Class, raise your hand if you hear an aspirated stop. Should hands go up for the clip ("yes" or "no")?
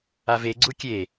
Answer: no